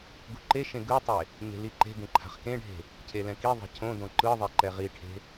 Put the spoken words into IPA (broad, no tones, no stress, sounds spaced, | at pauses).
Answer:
ɡ u ǃ e ʃ ẽ ɡ ɯ tˤ e | ɲ e̤ l i ǃ e̤ ɡ ẽ ǃʰ a̤ χ k ẽ ɖʱ e̤ | cʰ e l ɛ̃ k i ðˤ e̤ cʰ õ d õ ǃ ɯ ðˤ e ǃ ɛ ʁ i ʈʰ e̤